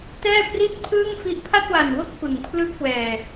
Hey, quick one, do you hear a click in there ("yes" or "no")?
no